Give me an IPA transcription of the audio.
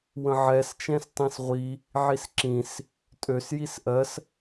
wə̃ʕɛst͡ʃɛ̃s tˤĩsʁʷi | ʕisǁĩs | tʼøsjis ʔɜs

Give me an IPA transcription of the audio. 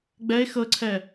ɡ͡bɛe̯ xɤǀʰɛ

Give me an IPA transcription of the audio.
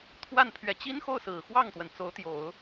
t̪ʰwa˥˩n pʰɥɛ˨˩t͡ɕi˥nxo˥˩ʊ̯ sɹ̩˨˩xwɑ˥˩ŋt̪wə˩n t͡so˧˥ʊ̯t̪jo˨˩˦ʊ̯

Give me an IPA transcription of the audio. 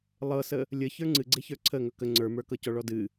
lˠɤsə | lʲə çə˞ŋ͡ǀɨɡ͡ǀeçə˞ ǀʰə ŋɵkə ŋ͡ǀə˞mə˞kɤcɔ ɭɔdɨ

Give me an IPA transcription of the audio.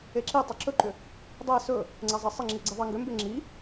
eǁitˤʏ ǁɵǃʏ | dˤe sɵ | ŋ͡ǀɛzˤɛsˤɪŋ͡ǁi ɡ͡ǀeðˤeŋɡʏmbe ŋ͡ǁi

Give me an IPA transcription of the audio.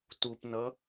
tupnʌ

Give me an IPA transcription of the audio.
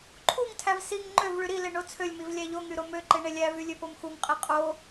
ǃʰuŋtʰæv siŋ ŋ͡ǃøv ɭyɾile ɳot͡sʰølʲmiv lʲæʎoŋy ɾomøǃe ɳelʲævy lʲøpomxuŋqʼe qʼo

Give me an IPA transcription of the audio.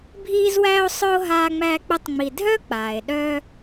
bʱiː˥zwæː˥o̯sˤœ˥o̯ ɦaː˥ŋ͡mæː˥k͡pɘ˥tˤŋ͡mi˧ dʱœ˥k͡paː˩e̯ɗœ˧

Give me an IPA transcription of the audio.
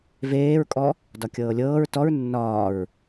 veːɹkʼɔ | dɒkʲɤːlʲɤːɹ tɔɹ nːɒːɹ

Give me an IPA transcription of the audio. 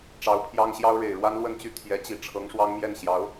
ʈ͡ʂɑ˧˥ʊ̯pʰjɑ˥ŋɕjɑ˥ʊ̯ ɻe˨˩ɪ̯ɻwa˥nlwə˥˧nt͡ɕy˥˩ t̪ʰjɛ˧˥t͡ɕi˨˩ ʈ͡ʂʰɤ˧˥ŋʂwɑ˥ŋmjɛ˥˩n ɕjɑ˧˥ʊ̯

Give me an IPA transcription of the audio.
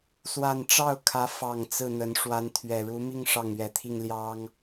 swa˥˧n ʈ͡ʂɑ˥˩ʊ̯kʰä˧˥ fɑ˨˩ŋ t͡sɹ̩˥˩n̪ə˧˥n ʂwa˧˥nt̪ʰɥɛ˨˩ɻu˧˥mi˥˧ŋ ʂɑ˥˩ŋɥɛ˨˩t̪ʰi˥˩ŋ ljɑ˥ŋ

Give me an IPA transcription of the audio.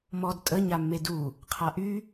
mɔd tʼə ɲamːedu | qʰaʔy

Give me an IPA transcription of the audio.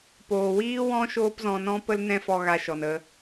poː˨wiː˦wɔ̃˦ ʃoː˦pzɔ̃˧nɔ̃˦ pə˦lnɛ̃˦fɔ˧ ɣa˧ʃɔ˨nə˧

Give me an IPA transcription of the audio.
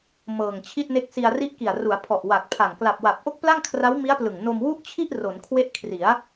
mɤː˨˩ŋt͡ɕʰi˥˩t̚ne˦˥k̚ si˧a̯ri˦˥ʔki˨˩a̯ ru˩˦a̯pʰɔ˨˩ʔ wa˨˩k̚ pʰa˨˩ŋ kla˨˩p̚wa˨˩p̚ʔo˦˥k̚ pla˥˩ŋkʰra˦˥wmi˦˥a̯plɯ˨˩ŋ no˧mwu˥˩ʔt͡ɕʰi˥˩ʔ ro˩˦nkʰwe˦˥ʔkʰri˩˦a̯

